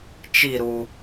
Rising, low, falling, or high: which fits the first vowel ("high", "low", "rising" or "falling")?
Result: falling